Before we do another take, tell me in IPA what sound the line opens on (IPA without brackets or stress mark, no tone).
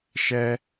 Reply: ʃ